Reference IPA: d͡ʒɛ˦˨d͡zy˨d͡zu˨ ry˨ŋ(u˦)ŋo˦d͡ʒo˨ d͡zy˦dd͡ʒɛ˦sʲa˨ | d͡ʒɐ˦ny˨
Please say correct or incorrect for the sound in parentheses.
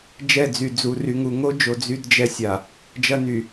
incorrect